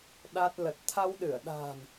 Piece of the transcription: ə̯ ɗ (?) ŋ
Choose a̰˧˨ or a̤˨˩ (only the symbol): a̤˨˩